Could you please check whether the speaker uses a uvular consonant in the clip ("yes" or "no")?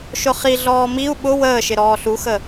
yes